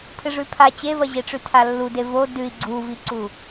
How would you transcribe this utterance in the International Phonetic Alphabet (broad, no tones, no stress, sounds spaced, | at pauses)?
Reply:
pʰ ɨ ʐ ʉ pʰ a t͡ɕ e v ɐ ʑ e ʈ͡ʂ ʉ tʰ a lː u d e v o d ʉ i̯ ɡ͡ǀ u v i ǀ u